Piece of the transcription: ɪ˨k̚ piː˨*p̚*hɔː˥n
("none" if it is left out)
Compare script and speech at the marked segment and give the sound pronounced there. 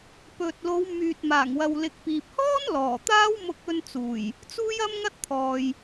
p̚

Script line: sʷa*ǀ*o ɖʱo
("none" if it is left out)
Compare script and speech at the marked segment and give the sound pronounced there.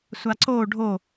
ǀ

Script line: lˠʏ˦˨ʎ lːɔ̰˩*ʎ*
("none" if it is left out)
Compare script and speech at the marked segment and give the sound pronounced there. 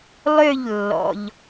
ʎ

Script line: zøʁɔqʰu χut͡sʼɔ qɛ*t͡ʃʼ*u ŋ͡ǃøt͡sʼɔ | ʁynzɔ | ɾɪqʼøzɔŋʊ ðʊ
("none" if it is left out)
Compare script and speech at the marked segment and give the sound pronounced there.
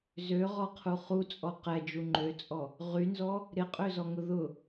d͡ʒ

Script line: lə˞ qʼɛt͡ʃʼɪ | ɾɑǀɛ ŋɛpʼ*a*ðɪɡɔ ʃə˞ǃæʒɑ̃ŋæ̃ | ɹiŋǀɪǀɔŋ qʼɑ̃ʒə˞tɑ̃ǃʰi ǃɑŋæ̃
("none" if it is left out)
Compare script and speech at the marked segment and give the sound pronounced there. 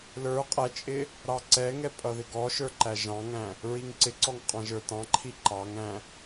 ʌ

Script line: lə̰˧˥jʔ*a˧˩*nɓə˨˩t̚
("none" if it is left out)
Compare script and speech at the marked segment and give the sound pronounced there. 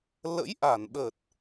a˧˩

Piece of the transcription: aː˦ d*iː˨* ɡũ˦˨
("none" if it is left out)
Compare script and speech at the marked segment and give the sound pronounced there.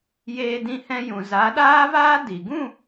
i˨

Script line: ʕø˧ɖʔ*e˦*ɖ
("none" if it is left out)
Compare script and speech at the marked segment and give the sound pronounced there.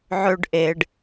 e˨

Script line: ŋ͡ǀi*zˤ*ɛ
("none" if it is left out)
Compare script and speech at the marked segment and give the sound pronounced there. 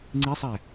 sˤ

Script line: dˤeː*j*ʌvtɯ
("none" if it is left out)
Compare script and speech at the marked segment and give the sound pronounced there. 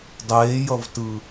j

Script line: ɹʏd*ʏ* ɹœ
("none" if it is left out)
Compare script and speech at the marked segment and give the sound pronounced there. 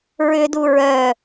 u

